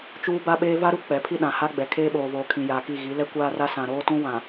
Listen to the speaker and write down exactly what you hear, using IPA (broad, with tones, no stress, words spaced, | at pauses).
t͡ʃuː˦ba˦ɓeː˦ va˦ɾu˦ k͡pɛ˨˦pʰi˦ɗã˨ ha˦ɡ͡bɛ˨ kʰeː˦ɓoː˨voː˨ kʰĩ˨jaː˨ki˦˨ ɣi˨˦lɛ˦kʷaː˦ra˦ sã˨ɾoː˦tũ˦ wã˨